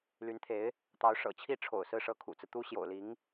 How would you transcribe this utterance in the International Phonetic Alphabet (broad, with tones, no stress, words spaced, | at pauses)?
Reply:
ly˧˥nt̪ʰe˧˥ɪ̯ | t̪ɑ˧˥ʊ̯ʂɤ̰˨˩t͡ɕʰi˥˩ʈ͡ʂʰo̰˨˩ʊ̯ sɹ̩˥˧ʂɤ˥˩ kʰṵ˨˩t͡sɹ̩˦ t̪u˥ɕjo̰˨˩ʊ̯ li˧˥ŋ